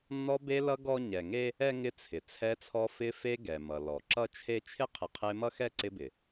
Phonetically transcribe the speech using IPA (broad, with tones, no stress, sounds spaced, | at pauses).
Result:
nː ɔ˦ b e˦ l ʌ˦ ɡ ɔ˥ ɲ ɛ˨ ŋ e˥ | ɛ˥ ŋ ɪ˦ t͡sʰ ɪ˩ t͡sʰ ɛ˦ t͡sʰ ɔ˦ f ɪ˦ f e˦ ɡ ɛ˩ m ʌ˩ l ɔ˩ ǁ ʌ˥ t͡ʃʰ e˥ t͡ʃʰ ɪ˥ qʰ ɪ˨ qʰ e˦ m ʌ˥ x ɛ˥ ǀ ɪ˦ b ɪ˩